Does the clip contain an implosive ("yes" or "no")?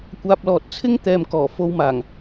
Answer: no